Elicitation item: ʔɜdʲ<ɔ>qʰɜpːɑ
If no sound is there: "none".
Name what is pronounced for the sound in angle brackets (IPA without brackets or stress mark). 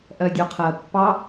ɔ